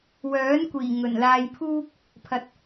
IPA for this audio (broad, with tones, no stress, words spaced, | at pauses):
wœː˨˥nkʷiː˨˩ ŋɵ˨˩nlaː˧jpʰuː˥k̚ | pʰɐ˨˥t̚